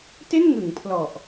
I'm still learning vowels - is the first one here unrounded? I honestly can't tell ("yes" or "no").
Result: yes